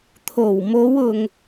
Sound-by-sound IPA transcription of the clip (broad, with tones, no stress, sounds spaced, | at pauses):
t̪ʰ o˨˩ w m o˨˧ w ʊ˨ ŋ